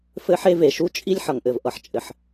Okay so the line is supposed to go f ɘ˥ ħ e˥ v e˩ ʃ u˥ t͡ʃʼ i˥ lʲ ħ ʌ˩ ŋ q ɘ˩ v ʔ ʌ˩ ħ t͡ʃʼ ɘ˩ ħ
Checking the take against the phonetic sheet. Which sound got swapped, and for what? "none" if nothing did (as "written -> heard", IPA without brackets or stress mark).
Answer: q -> ʔ